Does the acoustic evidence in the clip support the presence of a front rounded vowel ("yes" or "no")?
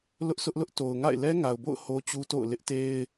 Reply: no